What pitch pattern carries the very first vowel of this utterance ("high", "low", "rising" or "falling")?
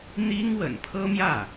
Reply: high